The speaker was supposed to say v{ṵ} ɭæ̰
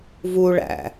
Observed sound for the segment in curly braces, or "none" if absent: u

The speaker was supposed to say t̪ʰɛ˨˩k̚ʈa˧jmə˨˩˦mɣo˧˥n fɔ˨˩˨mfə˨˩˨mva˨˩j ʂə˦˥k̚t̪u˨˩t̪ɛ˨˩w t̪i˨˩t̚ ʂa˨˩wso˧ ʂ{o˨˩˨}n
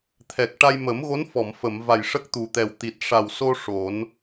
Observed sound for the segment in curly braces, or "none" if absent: o˨˩˦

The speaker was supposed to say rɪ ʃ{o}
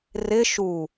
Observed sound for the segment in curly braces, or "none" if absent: u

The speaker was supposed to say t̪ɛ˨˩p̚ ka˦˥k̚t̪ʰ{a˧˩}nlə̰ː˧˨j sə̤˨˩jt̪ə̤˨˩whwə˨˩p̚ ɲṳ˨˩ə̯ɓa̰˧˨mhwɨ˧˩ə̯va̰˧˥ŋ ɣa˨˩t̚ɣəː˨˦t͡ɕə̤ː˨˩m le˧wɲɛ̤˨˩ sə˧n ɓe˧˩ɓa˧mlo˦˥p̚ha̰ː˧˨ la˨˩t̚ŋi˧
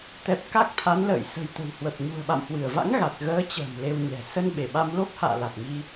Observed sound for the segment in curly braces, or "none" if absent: a˨˦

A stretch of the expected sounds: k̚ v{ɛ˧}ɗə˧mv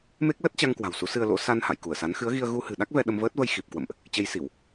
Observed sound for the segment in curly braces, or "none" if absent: ɛ˧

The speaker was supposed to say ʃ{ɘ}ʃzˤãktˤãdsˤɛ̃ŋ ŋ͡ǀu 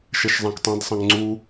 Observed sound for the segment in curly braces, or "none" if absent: ɛ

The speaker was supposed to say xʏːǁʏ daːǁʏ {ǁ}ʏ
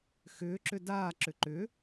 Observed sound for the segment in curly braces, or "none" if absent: ǃ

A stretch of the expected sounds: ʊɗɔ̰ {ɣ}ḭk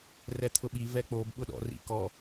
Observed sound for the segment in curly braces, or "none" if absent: r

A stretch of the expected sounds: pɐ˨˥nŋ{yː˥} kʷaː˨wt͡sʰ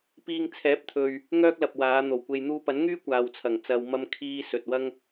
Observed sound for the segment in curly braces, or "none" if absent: yː˥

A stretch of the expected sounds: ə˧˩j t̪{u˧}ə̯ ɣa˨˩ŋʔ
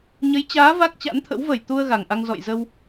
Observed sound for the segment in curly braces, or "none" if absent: u˧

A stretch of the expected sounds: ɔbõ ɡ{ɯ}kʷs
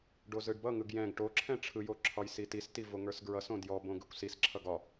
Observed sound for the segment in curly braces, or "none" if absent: ɯ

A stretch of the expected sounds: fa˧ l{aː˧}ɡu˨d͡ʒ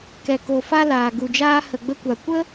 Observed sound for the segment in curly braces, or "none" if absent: aː˨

